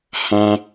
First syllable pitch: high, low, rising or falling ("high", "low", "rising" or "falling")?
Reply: low